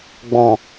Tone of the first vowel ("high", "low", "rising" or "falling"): low